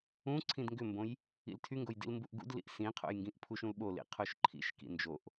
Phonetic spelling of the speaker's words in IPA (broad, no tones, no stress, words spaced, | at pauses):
ũǀʰĩd ŋɡʏmbõj | ḭltʰyŋɡoj dḭlmbuʔɡṵdlḭʔ sĩqʰo̰j ŋɡĩʔpʰuʃũl ɓolḭ qʰoʃǃʰḭʃkḭ nd͡ʒoʔ